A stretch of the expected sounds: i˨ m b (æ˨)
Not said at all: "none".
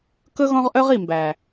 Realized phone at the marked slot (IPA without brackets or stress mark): æ˨